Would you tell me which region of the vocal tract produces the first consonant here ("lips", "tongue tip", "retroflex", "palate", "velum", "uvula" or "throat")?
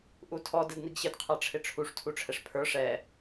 throat